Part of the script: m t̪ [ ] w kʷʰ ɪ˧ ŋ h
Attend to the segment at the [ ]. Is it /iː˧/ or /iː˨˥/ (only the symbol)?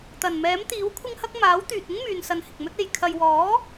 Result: iː˨˥